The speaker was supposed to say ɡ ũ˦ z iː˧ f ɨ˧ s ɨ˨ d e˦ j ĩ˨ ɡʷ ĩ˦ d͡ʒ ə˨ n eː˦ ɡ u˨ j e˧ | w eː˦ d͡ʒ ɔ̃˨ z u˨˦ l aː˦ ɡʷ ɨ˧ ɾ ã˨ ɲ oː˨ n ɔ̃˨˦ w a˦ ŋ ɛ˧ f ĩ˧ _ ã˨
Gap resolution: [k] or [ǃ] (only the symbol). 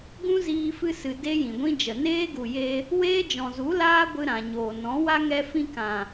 k